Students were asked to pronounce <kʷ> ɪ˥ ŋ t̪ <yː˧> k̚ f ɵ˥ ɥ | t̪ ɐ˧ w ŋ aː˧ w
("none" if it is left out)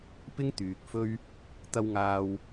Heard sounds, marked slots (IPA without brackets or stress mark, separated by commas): p, yː˨